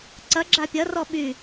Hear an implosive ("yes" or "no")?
yes